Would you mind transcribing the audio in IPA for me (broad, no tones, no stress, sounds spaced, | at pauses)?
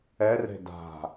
ɛ r e̤ d a̤